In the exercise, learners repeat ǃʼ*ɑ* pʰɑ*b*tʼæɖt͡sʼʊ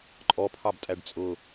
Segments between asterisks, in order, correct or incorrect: incorrect, correct

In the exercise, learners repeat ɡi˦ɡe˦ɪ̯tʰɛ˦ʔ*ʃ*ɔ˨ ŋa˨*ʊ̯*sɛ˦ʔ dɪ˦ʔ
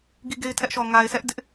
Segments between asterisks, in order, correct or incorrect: correct, incorrect

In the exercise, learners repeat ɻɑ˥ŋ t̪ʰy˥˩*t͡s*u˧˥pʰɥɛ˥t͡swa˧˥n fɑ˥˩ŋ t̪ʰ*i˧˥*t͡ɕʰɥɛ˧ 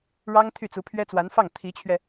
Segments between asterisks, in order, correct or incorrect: correct, correct

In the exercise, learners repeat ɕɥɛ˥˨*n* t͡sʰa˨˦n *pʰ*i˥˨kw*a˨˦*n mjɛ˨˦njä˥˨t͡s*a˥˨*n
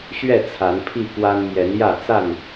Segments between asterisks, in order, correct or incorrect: incorrect, correct, incorrect, correct

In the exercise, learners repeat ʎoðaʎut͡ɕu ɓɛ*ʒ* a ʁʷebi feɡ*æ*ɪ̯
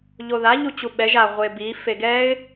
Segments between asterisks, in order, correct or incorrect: correct, incorrect

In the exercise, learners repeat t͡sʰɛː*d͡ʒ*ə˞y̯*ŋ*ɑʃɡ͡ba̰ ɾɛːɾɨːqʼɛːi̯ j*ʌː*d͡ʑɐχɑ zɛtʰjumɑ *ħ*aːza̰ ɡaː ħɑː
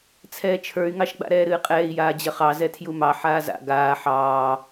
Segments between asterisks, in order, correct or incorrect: incorrect, correct, incorrect, correct

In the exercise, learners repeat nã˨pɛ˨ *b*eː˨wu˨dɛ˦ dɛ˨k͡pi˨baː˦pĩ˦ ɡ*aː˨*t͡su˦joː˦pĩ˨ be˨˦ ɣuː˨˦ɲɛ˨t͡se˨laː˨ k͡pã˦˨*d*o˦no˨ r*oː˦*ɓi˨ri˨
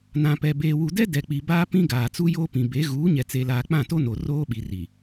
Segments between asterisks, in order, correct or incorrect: correct, correct, incorrect, correct

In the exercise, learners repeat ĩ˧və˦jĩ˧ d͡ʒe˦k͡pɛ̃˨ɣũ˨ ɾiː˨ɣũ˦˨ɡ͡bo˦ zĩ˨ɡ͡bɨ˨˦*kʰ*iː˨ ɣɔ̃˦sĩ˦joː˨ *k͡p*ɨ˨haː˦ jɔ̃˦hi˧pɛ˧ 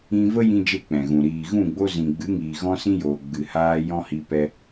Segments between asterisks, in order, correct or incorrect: incorrect, incorrect

